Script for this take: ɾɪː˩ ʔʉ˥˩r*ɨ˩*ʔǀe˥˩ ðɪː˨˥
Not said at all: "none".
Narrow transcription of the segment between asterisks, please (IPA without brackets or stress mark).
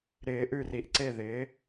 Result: i˩